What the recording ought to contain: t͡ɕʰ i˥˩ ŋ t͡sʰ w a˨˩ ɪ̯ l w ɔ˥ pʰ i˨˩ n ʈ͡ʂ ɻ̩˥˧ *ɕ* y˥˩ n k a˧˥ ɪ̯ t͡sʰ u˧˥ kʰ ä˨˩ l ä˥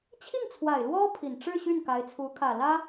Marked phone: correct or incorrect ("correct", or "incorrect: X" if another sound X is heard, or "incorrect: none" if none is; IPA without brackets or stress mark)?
correct